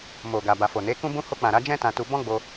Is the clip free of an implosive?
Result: yes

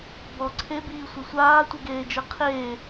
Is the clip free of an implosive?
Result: yes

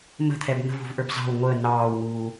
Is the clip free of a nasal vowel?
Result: yes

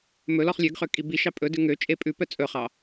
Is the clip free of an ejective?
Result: no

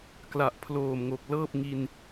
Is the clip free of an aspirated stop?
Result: no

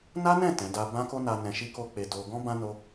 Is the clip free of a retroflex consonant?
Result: yes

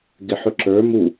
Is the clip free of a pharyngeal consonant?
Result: no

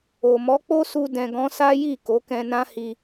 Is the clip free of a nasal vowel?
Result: no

